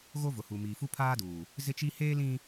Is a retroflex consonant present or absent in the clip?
absent